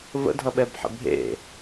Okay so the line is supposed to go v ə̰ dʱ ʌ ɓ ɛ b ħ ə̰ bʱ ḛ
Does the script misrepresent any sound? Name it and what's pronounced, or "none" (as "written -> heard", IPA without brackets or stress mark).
none